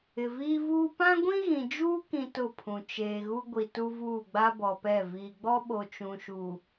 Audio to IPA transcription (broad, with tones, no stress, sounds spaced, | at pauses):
ɪ˨ v iː˦ v uː˦ p ã˦ ɡʷ ĩ˦ ɣ ĩ˨ d͡ʒ uː˦ k ĩ˦ t ʊ˦˨ pʰ ũ˨ t͡ʃ eː˨ ɣ u˦ ɡʷ i˨ t u˦ v uː˦˨ ɡ͡b a˦ b ɔ˨ p ɛ˦˨ v iː˨ ɡ͡b ɔ˦ ɓ o˨ t͡ʃ ũ˨ ʃ u˨